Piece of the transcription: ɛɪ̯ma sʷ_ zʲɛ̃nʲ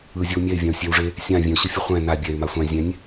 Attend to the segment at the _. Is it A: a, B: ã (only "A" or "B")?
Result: B